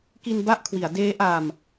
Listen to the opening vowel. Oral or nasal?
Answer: oral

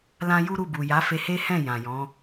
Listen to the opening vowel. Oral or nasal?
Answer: nasal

